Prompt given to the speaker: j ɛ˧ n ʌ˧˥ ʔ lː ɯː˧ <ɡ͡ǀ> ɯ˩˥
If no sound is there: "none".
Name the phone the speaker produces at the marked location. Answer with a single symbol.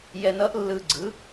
ɡ͡ǀ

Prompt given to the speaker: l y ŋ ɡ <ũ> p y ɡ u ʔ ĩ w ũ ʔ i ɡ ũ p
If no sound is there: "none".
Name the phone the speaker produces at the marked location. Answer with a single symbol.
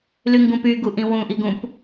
ũ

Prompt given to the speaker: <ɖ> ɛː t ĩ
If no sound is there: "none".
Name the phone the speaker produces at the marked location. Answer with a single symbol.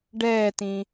ɖ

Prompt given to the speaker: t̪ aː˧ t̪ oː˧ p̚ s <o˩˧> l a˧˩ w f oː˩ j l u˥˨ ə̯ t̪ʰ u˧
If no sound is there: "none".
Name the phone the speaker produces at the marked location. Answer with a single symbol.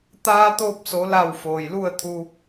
o˩˧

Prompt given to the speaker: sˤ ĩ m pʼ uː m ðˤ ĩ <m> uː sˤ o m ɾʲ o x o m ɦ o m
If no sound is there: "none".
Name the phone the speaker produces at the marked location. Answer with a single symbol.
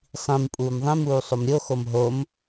m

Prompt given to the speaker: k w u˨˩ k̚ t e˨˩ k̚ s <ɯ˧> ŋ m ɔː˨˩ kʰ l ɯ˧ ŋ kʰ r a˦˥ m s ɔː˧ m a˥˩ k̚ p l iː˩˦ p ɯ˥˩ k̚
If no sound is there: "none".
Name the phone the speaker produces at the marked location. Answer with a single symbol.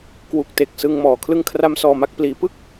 ɯ˧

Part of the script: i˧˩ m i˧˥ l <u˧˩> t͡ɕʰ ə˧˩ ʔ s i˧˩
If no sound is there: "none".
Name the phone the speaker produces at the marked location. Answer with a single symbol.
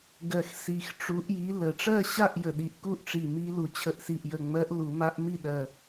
u˨˩˦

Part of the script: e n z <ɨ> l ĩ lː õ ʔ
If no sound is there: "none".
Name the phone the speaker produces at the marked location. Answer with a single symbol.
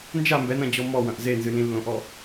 ɨ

